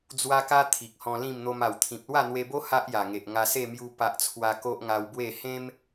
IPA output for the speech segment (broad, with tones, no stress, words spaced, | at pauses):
d͡zwa˦ka˦ t̪ʰi˨k̚hɔ̃˧ lĩ˥˧mn̪o˧m a˨˩wt̪ʰĩ˨p̚ lwa˥˧n̪we˧bo˦ ha˦ʔja˨˩ŋe˨ʔ ŋa˧se˥˧mju˧ pa˨ʔ t͡sʰwa˧ ko˦ʔŋa˧wbwe˥˧ hẽ˦m